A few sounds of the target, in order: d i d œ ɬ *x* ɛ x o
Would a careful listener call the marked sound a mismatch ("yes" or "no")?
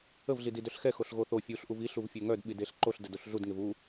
no